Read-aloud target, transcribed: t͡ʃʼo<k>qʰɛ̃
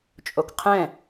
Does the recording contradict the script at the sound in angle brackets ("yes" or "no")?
no